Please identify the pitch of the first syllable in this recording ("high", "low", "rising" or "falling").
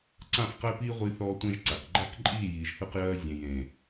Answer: falling